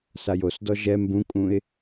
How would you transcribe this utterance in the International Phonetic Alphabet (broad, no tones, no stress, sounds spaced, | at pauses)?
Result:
s a j o s d ɔ ʒ ɛ m b ũ kʼ ũ ɪ̯